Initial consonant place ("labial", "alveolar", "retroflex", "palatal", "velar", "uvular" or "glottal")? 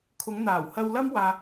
velar